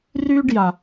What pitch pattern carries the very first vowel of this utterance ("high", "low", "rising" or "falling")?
high